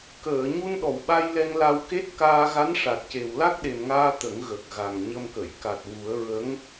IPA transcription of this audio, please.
k əː˨˩˨ ɲ u˧ n ɗ ɔ˨˩˨ w ɓ a˧ j l ɛ˧ ŋ l a˧ w k e˦˥ t̚ k aː˧ ɣ a˧˥ n ʂ a˨˩ t̚ c e˨˩ w l a˦˥ k̚ ɗ e˨˩ m ŋ aː˧ t̪ ə˨˩˦ ŋ ɣ ə˨˩ k̚ ɣ a˨˩ ŋ ɲ ə˧ m k ə˨˩˨ j k a˨˩ t̚ w u˨˩˦ ə̯ ɹ ə˧˥ ŋ

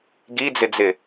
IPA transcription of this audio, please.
ɡ i d͡z ɪ d͡z ɪ

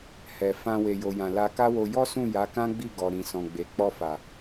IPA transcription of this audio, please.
h ɛ˨ f ã˧ w e˨ j o˨ j ã˨ l a˧ k a˦ w o˧ j ɔ˦ s ũ˦˨ j a˨˦ k ã˦ ɡ͡b i˦˨ ɡ ɔ˨ ɾ ĩ˨ s ɔ̃˨ ɡ͡b e˨ k͡p ɔ˧ f a˨

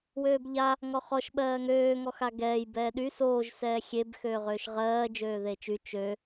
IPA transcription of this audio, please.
w øː b ʎ a | ŋ ɔ χ ɔ ʃ ɓ ɜː ŋ øː ŋ ɔ x a ɡ ɛː j b ɛː ɗ y s oː ʒ s ɛː xʲ e b x øː ʁ øː ʃ ʁ ɜː d͡ʒ øː ð e t͡ʃ y t͡ʃ ø

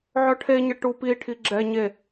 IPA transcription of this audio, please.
ʕ œ ʈʰ e ɲ ə ʈ u p i ʈʰ i ɡ͡ǁ ɛ ɲ e

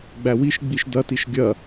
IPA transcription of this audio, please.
ɡ͡b æ w i ʃ ɡ͡b i ʃ d ɐ t i ʃ ɡʲ ɐ

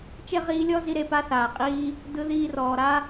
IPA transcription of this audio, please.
t͡ʃ e˦ ʁ iː˧ lʲ ɔ˦ z i˧ ɾ e˧ p a˦ θ aː˨ qʼ iː˦ | d ɯ˧ ð iː˧ r ɔː˨ ɾ a˦

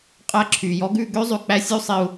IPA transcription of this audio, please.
qʼ æ˦ ǁʰ y˨ j ɔ˧ ɡ ʉ˦˨ ɡ ø˦ zˤ ʉ˨ k͡p æ˦ sʲ u˦ sˤ i˧ u̯

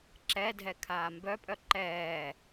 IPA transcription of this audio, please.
ǁ ɛ dʱ ɛ kʰ aː m b œ pʼ œ ǃ ɛː

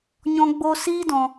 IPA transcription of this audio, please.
ɲ ɔ̃˦ ɡ͡b o˦ s iː˦ d ɔ̃˧

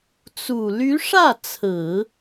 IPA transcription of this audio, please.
t͡s u˨˩ l y˧˥ ʂ ä˥˩ t͡sʰ ɹ̩˨˩˦

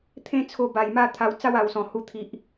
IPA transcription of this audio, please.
t̪ʰ ẽ˥˧ t͡sʰ o˧ b a˨˩ j m a˥˧ t̪ʰ a˧ w t͡s a˦ w a˨˩ w s ɔ̃˨˩ h u˧ t̪ʰ i˨ ʔ

